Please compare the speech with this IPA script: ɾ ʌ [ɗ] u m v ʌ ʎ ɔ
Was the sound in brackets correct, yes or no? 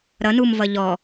no